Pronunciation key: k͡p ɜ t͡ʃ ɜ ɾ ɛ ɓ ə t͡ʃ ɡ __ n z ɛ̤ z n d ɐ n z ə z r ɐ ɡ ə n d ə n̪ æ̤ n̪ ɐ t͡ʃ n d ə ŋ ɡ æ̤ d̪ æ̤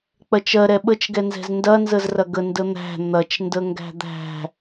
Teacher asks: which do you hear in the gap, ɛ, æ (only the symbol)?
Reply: ɛ